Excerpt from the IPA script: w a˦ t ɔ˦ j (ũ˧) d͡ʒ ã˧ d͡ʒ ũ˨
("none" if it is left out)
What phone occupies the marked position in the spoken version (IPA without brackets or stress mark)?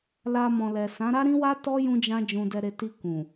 ũ˧